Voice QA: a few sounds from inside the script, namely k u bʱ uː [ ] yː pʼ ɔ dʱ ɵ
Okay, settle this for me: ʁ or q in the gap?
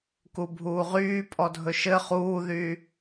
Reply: ʁ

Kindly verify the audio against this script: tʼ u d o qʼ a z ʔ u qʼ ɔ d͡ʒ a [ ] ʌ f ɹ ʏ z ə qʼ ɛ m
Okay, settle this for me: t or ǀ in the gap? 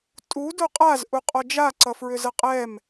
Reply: ǀ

